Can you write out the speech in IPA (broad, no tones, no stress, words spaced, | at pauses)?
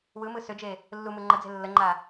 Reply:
wɯmɯ sʏd͡ʒe | lːu mɯŋ͡ǃəd͡ze̤ lːəŋ͡ǃa